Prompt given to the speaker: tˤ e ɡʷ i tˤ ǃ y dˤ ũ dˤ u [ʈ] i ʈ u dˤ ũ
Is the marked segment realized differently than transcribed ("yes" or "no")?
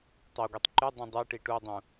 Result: no